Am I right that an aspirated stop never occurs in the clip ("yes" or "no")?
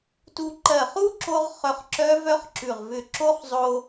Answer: yes